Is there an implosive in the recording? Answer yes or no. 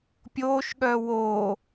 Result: yes